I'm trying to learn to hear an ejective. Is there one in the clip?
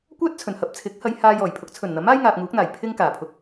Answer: no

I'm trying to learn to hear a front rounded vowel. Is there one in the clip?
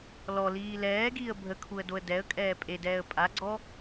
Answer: no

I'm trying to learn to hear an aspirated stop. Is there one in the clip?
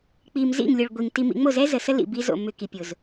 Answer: no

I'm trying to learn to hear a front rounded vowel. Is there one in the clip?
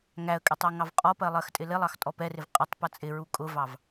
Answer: no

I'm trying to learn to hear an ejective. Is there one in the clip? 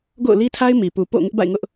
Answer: no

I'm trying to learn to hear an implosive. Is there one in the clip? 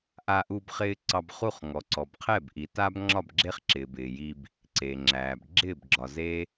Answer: no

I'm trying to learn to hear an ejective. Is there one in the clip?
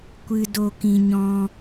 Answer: no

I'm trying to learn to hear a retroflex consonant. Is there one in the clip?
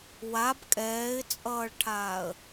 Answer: yes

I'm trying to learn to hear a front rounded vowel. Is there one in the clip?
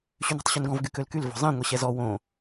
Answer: yes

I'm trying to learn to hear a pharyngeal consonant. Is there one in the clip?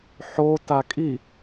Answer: yes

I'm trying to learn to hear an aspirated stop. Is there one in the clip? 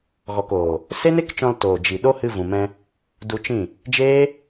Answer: no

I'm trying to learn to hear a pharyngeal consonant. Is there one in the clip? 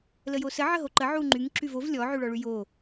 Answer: yes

